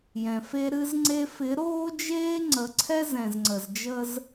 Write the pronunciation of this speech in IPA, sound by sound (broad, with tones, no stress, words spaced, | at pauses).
jɛ̃˨fe˦ ɾɨ˦zŋ͡ǀe˦ fɪ˨˦ɾoː˦d͡ʒeː˦ ŋ͡ǀə˨˦ǀʰɛ˦ zɛ̃˨zŋ͡ǀə˨zd͡ʒə˦z